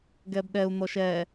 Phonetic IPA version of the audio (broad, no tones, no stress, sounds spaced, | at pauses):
ɡ ɛ b ɗ ɛ u̯ n̪ ɔ ʃ ɛ